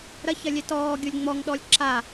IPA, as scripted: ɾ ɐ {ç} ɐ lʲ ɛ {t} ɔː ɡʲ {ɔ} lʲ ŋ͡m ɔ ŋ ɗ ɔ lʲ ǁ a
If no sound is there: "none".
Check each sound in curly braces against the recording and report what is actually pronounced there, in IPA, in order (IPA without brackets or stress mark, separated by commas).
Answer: ç, t, o